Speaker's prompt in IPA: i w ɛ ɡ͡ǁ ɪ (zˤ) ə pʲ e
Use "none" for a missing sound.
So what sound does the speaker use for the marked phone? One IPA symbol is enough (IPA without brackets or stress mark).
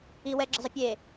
zˤ